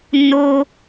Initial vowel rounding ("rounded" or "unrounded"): rounded